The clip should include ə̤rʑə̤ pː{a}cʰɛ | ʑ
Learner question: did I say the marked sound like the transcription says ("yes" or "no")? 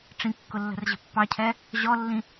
no